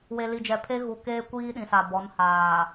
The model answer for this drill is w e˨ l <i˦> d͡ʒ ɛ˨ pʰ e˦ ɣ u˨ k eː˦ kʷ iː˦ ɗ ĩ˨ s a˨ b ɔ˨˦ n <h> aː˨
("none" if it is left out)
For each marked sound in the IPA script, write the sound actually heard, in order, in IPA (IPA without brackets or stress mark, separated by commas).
i˨, h